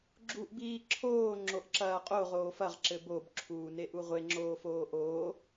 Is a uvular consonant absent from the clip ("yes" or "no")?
no